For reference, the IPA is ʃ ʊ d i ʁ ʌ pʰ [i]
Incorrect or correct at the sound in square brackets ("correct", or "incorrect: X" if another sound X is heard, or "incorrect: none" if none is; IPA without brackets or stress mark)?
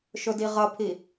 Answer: correct